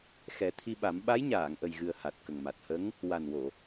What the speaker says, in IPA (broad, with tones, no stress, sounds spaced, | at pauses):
x ɛ˨˩˦ t̪ʰ i˧ ɓ a˨˩˦ m ɓ a˧˥ j ɲ aː˨˩˨ ŋ ʔ ə˨˩ j ɣ ɨ˨˩ ə̯ h a˨˩ t̚ k ə˨˩ ŋ m a˨˩ t̚ h ə˧˥ ŋ | w a˨˩ n w o˨˩˨